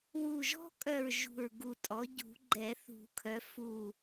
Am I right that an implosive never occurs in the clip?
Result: yes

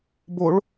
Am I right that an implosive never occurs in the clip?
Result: yes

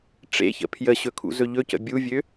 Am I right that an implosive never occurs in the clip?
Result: yes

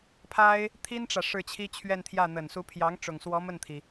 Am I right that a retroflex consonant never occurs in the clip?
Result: no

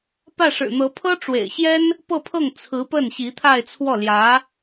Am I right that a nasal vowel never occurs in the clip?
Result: yes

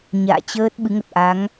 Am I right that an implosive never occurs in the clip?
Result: no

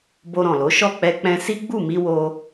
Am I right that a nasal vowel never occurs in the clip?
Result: no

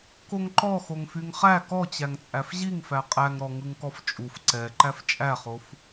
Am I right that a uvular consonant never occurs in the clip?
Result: no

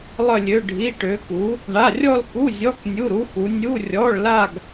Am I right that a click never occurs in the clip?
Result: yes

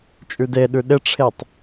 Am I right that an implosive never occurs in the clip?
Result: no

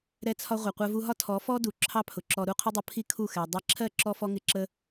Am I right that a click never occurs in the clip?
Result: no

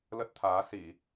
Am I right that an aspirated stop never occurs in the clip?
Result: no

